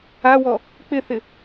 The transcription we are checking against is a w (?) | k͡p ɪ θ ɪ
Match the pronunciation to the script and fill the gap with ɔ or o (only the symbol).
ɔ